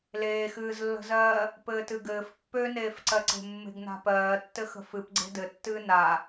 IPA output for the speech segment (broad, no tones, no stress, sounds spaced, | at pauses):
l eː x ɨː z lː ə̤ z ɜː | p ɘː t ɨ ɡ ɘː f pː ø n eː f ǀ ɜ ǀ e̤ mː e̤ ɡ n a̤ p ɜː tː ɘ x ə̤ f ɨ p ɡ͡ǀ e̤ d ɘ tː ɨː n a